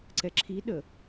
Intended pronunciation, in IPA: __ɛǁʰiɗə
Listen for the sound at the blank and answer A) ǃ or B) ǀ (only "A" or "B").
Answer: B